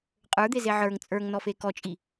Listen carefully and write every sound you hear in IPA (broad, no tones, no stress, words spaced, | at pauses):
qʼə˞d̪eze ʕə˞ŋ t͡sʼə˞ŋnɔfe kɔt͡ʃʼi